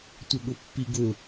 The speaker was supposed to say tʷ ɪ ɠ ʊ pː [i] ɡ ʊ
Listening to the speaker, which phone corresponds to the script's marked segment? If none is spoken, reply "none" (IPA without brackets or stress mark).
i